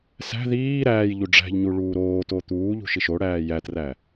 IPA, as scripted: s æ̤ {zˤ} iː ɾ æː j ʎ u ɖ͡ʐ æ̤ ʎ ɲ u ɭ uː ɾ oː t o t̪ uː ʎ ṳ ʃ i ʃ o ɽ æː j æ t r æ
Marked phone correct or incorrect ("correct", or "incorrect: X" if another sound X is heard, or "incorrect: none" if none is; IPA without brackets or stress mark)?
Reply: incorrect: ð